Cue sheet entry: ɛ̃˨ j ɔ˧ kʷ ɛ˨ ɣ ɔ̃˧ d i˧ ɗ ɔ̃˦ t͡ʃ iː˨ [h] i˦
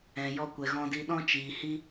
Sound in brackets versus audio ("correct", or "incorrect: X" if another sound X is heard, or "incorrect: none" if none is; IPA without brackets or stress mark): correct